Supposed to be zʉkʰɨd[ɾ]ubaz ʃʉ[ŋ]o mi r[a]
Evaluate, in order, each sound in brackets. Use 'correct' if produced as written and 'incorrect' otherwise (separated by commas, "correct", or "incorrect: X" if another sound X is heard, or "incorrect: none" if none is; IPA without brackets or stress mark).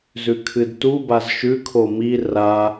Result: incorrect: t, incorrect: kʰ, correct